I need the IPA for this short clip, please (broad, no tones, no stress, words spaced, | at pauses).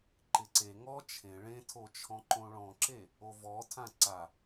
ǃɪǀe ŋɔ t͡ʃʰẽ ɭẽtʰot͡ʃʰɔ̃ǃõ ɭɔ̃ǁe | ovɔtʰã ǀa